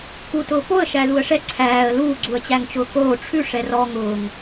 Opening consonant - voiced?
no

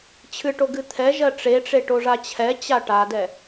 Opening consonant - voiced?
no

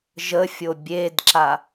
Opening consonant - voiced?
yes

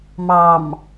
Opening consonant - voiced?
yes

